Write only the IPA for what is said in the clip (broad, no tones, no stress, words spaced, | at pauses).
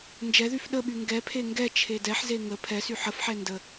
nd͡ʒɛðyf ɗəɓy ŋɡɛpʰe ŋɡɛ t͡ʃʰedɛħze ŋə pʰɛsy ħəfħɛ ndə